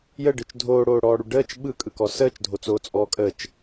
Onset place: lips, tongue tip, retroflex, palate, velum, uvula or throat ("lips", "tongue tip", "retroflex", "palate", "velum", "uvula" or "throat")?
palate